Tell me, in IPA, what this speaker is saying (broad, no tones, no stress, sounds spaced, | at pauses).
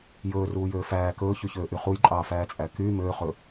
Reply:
j ɵː r uː j øː f æː k ɵː ç y ç øː ʔ y χ u j ǃʼ ɑː f æː t͡sʼ æ k y m øː χ ɵ